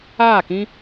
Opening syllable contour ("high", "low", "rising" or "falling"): falling